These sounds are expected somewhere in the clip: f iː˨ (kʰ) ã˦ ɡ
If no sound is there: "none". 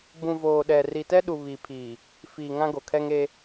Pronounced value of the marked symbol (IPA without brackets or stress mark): ŋ